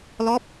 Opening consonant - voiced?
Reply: yes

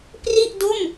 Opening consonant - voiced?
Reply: no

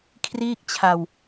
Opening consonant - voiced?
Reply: no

